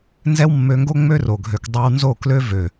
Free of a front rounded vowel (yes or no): no